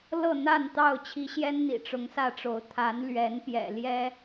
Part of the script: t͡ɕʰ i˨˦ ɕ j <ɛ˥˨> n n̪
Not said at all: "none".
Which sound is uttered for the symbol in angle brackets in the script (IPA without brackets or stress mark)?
ɛ˦